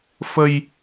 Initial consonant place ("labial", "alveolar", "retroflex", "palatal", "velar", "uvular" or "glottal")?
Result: labial